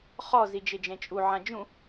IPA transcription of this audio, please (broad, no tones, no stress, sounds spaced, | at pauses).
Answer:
χ ɔ z i d͡ʒ e d͡ʒ ɛ̃ t͡ʃʼ u ʕ ã d͡ʒ ũ